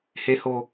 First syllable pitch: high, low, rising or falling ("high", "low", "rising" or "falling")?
high